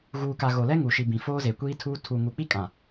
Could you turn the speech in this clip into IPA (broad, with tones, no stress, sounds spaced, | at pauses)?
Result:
ɣ uː˨ k a˨ ɣ o˨ l ɛ˦ ŋ u˨ ʃ i˨ b ĩ˨ f oː˦ z e˨ kʷ iː˦ tʰ uː˦ tʰ u˨ ŋ u˨ k͡p i˦ kʼ ã˨